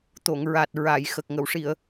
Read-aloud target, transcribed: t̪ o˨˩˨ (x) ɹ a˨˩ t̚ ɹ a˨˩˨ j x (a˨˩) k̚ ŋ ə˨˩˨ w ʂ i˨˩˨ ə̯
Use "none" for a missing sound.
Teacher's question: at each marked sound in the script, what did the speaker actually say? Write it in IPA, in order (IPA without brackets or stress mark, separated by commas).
ŋ, ə˨˩